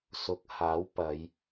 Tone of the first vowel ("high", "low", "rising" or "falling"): rising